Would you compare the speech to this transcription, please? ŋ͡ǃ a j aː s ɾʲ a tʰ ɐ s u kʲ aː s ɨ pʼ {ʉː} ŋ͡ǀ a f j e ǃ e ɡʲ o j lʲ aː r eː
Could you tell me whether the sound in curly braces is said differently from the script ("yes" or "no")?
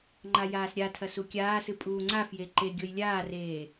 yes